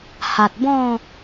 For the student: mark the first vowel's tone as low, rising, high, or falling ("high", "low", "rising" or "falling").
low